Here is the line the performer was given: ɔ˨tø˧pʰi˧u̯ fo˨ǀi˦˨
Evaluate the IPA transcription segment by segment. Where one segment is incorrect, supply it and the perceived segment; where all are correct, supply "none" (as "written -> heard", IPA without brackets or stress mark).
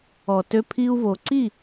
f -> v